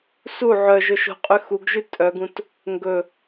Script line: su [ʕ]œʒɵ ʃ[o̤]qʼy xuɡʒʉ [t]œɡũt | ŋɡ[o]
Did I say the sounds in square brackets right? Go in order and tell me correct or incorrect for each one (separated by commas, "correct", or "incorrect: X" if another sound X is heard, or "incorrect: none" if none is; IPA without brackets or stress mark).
correct, correct, incorrect: tʼ, incorrect: ɵ